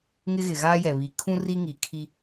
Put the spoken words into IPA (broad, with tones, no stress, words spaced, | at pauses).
ŋɪ˦ɣɪ˨ɣaː˦jɛ˨ βi˨kʰũ˦ ri˦ŋi˨kʰi˦